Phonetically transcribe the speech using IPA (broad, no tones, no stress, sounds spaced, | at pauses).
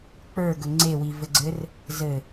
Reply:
k͡p ə˞ ɡ ɵ ŋ͡ǀ e w i v ɘ ɡ͡ǀ ɘ r | z ɘ